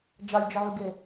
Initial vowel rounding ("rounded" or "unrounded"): unrounded